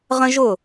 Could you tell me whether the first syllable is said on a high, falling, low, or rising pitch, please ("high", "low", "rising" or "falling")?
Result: high